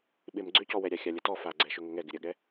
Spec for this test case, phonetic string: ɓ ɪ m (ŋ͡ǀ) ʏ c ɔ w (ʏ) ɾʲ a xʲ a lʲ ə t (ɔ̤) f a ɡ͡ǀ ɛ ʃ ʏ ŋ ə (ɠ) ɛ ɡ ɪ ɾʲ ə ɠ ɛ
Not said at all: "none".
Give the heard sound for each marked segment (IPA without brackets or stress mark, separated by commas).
ɡ͡ǀ, ɛ, ɔ, ŋ